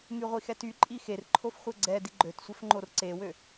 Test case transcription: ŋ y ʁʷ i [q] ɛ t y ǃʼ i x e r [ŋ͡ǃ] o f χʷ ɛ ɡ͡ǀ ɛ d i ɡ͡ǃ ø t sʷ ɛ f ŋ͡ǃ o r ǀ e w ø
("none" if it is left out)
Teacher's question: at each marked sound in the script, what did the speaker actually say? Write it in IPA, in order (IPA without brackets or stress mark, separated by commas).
x, ǃʰ